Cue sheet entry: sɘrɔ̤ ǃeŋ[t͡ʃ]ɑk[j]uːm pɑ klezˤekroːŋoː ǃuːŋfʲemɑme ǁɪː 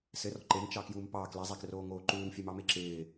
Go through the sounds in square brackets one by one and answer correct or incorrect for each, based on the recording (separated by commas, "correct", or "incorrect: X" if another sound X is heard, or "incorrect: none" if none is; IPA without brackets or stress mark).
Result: correct, correct